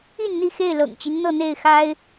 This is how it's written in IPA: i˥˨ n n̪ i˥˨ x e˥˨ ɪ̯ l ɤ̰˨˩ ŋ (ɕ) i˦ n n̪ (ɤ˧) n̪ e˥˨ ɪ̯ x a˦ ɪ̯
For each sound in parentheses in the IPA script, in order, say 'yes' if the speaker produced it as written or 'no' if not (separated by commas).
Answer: no, no